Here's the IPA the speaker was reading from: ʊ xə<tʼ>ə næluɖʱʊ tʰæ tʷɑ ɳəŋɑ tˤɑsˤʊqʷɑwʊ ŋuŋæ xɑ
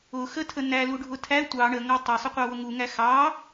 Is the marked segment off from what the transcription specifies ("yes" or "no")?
yes